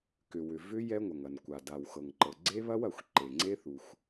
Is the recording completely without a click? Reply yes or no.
no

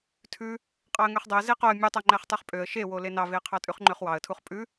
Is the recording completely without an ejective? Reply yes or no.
no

